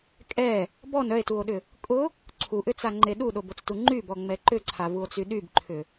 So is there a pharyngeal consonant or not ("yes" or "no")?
no